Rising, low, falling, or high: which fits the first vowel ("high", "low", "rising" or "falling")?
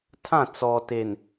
falling